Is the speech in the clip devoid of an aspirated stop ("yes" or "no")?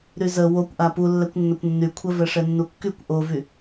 no